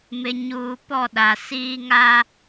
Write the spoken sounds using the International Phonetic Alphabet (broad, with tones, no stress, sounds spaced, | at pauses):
m ɪ˨ ɲ uː˨ p ɔ˦˨ ɗ a˨ s iː˦ ŋ a˦